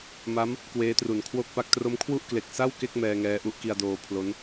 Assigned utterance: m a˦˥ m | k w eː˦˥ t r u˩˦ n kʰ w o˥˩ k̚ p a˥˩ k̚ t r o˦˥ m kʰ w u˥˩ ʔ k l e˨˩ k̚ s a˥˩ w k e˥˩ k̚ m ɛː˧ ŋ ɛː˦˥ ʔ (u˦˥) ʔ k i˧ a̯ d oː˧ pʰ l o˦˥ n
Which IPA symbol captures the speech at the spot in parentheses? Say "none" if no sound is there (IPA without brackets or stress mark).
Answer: u˦˥